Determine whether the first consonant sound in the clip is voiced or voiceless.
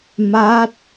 voiced